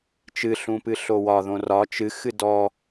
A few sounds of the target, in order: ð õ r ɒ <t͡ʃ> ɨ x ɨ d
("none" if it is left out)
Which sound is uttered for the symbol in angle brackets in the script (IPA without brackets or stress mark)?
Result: t͡ʃ